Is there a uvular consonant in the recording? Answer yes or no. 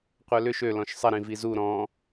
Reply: yes